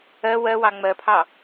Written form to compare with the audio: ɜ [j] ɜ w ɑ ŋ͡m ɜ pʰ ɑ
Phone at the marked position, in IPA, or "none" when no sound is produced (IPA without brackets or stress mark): w